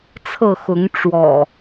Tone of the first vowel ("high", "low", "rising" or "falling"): falling